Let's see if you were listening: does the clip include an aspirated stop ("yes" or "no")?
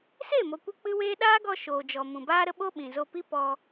no